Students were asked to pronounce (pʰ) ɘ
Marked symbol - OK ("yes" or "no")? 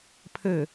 yes